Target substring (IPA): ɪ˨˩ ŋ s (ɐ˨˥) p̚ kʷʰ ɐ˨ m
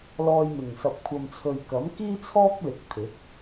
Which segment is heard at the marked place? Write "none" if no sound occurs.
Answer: ɐ˨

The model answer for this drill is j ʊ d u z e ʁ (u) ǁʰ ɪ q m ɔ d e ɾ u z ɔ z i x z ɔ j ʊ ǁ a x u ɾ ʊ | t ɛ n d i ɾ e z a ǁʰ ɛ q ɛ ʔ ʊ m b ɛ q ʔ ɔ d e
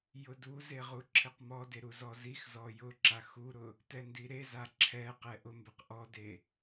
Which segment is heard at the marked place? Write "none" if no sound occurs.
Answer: u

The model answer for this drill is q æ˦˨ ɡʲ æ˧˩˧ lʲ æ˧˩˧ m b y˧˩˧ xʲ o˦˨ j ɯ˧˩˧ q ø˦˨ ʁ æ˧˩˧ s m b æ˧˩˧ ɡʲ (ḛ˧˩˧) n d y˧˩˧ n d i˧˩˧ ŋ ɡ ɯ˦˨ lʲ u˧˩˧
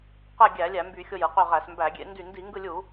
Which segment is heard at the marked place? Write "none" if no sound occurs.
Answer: ḛ˧˩˧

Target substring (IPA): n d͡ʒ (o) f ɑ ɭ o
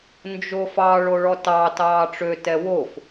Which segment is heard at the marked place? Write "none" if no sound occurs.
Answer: o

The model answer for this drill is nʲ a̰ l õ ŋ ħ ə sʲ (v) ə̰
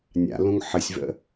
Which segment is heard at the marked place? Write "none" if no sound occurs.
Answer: v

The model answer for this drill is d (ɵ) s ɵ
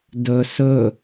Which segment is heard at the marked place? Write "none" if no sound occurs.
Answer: ɵ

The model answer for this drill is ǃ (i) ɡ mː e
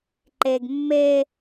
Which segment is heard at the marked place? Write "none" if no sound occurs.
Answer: e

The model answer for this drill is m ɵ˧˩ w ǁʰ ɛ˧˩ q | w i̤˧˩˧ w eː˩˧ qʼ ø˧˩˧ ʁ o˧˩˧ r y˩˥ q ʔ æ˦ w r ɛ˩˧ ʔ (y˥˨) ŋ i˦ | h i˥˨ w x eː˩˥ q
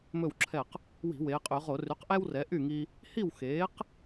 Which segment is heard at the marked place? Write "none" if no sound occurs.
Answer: y˥˨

